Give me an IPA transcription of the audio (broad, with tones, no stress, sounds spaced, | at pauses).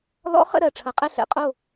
l ɔ̰˧˥ χ ə̰˦˨ ɾ ɜ˩ ʈ͡ʂʰ ɐ˨˩˦ qʼ ɛ˦˨ ɬ ɛ̰˨˩˦ qʼ o˦˨